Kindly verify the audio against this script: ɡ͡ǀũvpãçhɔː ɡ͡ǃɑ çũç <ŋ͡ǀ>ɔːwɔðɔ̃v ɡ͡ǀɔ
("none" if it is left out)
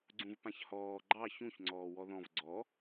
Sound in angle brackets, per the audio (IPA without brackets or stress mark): ŋ͡ǀ